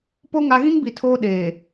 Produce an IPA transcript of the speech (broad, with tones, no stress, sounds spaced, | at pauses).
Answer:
p o˦ ŋ a˦ ɣ ĩ˦ ŋ b i˨ tʰ oː˦ ɗ eː˨